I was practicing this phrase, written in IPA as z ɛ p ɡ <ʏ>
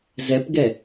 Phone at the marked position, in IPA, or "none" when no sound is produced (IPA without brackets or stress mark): ɛ